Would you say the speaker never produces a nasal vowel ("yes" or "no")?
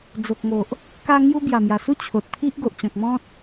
no